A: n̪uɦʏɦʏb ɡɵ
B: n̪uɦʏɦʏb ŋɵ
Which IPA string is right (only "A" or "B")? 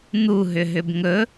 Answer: B